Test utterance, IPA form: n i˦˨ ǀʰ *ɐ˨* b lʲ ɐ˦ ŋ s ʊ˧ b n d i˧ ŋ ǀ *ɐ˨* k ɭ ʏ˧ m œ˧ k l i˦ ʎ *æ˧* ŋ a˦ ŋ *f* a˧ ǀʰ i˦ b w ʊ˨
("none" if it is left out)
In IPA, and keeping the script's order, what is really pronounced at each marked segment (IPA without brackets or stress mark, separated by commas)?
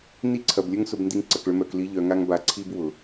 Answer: ɐ˨, ɐ˨, œ˧, b